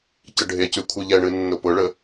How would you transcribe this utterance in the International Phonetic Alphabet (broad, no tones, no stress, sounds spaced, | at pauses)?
c ə ɖʱ e c y kʷʰ ɨ ʎ ɛ ɳ ɨ nː ʊ p ʊ ɭ ə